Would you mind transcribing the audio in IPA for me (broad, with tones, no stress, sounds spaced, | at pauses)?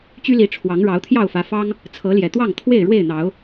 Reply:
t͡ɕ y˦ l i˨˦ ʈ͡ʂʰ w ɑ˨˦ ŋ ɻ ɑ˨˦ ʊ̯ t̪ʰ j ɑ˥˨ ʊ̯ f ä˨˦ f ɑ˦ ŋ | t͡sʰ ɤ˨˦ l j ɛ˨˩ t̪ w ɑ˥˨ ŋ t̪ʰ w e˥˨ ɪ̯ ɻ w e˥˨ ɪ̯ n̪ ɑ˨˦ ʊ̯